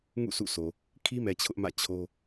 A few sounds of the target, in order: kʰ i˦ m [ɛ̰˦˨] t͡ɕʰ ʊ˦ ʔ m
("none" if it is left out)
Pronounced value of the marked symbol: ɛ˨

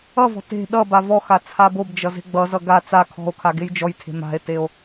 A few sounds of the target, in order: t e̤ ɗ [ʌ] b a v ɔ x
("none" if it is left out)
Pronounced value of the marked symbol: ʌ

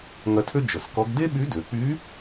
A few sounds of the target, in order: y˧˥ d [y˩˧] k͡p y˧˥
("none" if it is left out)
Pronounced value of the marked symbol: ø˩˧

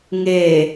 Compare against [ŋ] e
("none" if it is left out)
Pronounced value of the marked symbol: ŋ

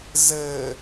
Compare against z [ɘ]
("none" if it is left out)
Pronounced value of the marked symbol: ɘ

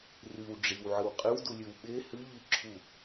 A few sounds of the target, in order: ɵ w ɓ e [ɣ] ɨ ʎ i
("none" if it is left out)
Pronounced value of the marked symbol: h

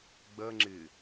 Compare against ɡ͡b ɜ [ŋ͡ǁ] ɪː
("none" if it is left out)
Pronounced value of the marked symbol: ŋ͡ǁ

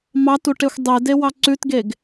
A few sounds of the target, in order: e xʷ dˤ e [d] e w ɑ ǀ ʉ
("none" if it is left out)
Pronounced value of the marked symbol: d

